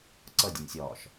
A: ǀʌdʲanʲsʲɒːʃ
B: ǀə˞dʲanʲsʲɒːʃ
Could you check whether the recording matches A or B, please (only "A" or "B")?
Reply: A